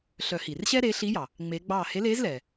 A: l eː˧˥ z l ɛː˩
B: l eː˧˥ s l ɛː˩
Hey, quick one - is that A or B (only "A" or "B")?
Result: A